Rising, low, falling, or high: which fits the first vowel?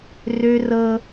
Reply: high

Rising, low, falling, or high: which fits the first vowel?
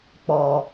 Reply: low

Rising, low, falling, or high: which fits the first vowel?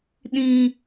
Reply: high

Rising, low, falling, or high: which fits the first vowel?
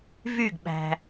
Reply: falling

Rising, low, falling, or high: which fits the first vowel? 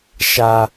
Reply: low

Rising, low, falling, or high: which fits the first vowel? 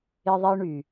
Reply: high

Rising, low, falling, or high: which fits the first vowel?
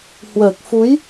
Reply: low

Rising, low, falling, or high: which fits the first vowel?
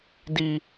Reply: high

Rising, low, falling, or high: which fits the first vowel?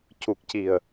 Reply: low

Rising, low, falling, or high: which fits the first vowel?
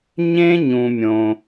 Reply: high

